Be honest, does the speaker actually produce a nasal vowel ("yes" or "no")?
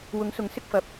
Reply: no